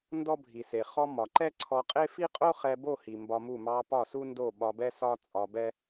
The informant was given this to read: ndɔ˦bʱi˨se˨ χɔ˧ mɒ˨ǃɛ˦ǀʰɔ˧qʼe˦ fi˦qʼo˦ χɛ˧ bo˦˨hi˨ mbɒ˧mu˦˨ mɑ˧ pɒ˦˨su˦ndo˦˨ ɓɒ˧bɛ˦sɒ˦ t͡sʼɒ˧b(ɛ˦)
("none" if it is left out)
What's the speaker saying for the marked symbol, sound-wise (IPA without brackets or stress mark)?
ɛ˦